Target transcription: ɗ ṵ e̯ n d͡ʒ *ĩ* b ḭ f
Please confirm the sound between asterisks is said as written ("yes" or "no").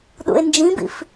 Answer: yes